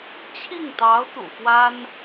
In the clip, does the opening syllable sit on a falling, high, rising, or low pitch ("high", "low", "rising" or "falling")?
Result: falling